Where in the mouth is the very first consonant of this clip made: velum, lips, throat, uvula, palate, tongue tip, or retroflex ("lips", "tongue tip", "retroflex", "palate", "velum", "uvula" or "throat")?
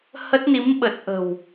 throat